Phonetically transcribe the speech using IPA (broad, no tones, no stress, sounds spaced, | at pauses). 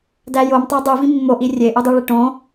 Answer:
d æ j o m tˤ æ dˤ u v ĩ mː o ʔ i rʲ e ʔ u dˤ u ɭ e ʈ õ